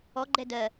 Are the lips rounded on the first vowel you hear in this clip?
yes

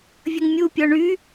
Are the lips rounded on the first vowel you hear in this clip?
no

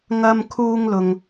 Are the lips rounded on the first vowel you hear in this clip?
no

